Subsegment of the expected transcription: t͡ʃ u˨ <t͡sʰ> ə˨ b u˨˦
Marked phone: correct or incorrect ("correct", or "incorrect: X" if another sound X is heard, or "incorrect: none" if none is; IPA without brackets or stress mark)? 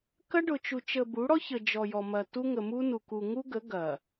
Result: incorrect: t͡ʃ